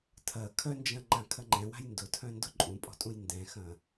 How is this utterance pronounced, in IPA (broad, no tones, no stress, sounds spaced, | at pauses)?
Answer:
tʰ ɐ kʰ œ n d͡ʒ ɐ̃ ŋ͡ǃ ã kʰ ɐ ŋ͡ǃ ɛ̃ w a̤ j n d ʊ tʰ œ̃ n d ʊ ǃʼ ũ pʼ ɔ̤ tʼ ũ j n d ɛ̃ x ɐ̃